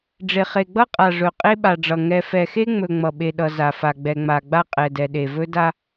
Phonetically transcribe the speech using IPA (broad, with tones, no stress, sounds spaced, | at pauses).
ɖ͡ʐ e˨ χ e˨ ɡ͡b ʌ˦ qʼ a˨ ʐ ɵ˨ qʼ e˦ ɓ a˨ ɖ͡ʐ ʌ˨ ŋ ɛ˨ f ɛ˨ x e˦ ŋ͡m ɵ˨ ŋ͡m ʌ˨ ɓ e˨ ɗ ʌ˨ z a˨ f a˨ ɡ͡b ɛ˨ ŋ͡m a˨ ɡ͡b a˦ qʼ ɛ˨ d ɛ˨ ɗ e˨ v ɵ˦ d a˦